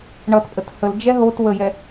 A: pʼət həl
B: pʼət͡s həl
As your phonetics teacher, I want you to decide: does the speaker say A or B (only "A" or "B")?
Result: A